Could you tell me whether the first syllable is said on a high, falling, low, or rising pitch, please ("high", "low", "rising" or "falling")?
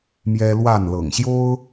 high